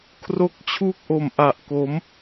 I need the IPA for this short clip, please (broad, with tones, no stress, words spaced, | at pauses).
kʰro˦˥k̚t͡ɕʰu˥˩k̚ʔo˨˩mʔa˨˩ʔ ko˩˦m